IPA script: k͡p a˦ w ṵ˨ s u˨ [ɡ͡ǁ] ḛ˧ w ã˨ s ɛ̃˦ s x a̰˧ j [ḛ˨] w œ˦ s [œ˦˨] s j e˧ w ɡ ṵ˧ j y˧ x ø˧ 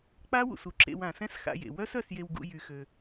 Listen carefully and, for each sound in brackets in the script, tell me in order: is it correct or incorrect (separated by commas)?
incorrect, correct, correct